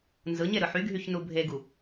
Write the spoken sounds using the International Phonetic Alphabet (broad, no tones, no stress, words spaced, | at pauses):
nzɯɲe ɾɯħyɡʱyç nubʱeɡu